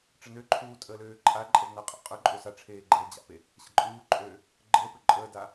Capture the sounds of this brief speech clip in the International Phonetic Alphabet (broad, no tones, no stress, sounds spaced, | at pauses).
ʈ͡ʂ ə n ø ǃʰ uː tʼ əː l øː ǃʼ a ǃʼ ə v n a qʼ a̰ qʼ ɵ ǃʼ ø s a ʈ͡ʂʰ eː ɡ͡ǃ əː d͡ʑ a̰ p e | ɕ ə̰ ǃʼ uː ǃʼ øː | ɡ͡ǃ əː p ø ǃʼ əː d aː